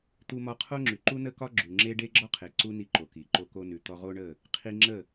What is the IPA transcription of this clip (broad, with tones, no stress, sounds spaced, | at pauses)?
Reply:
t̪ u˧ m ɒ˧ qʰ o˦ ŋ͡ǁ ʉ˨ ǃ u˦ n ə˦ k ɒ˦ ɡ͡ǁ ʉ˨ ŋ͡ǁ e˦ ɖ e˦ ɡ͡ǁ ɒ˦ qʰ e˨ ǀ u˦ n i˧ ǃ o˨ k i˨ ǃ o˧ k o˧ n ʉ˨ t̪ ɔ˧ ʁ o˦ ɳ ə˦˨ | qʰ i˧ ŋ͡ǁ ə˦˨